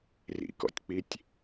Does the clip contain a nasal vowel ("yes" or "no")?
no